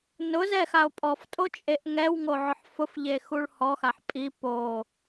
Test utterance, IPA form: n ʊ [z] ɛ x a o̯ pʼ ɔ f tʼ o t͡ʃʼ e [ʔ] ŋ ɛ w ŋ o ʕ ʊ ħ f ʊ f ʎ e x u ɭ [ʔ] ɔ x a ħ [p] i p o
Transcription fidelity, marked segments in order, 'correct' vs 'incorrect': correct, correct, incorrect, incorrect

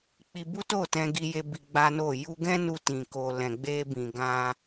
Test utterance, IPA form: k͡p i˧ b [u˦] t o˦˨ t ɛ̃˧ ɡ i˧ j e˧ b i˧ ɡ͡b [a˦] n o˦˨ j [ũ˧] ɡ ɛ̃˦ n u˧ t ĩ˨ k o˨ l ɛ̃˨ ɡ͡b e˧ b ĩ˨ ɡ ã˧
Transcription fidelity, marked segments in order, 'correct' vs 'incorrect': correct, correct, incorrect

